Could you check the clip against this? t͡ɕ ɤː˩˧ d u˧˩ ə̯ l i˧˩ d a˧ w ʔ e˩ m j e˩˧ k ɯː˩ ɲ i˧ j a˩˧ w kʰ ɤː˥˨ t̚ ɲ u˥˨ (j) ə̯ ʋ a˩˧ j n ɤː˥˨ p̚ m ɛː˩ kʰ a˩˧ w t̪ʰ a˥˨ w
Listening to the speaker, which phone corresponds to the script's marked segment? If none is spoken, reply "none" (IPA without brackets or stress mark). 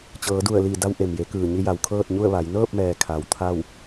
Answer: none